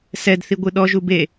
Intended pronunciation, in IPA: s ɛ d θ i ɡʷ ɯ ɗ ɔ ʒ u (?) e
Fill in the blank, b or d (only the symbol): b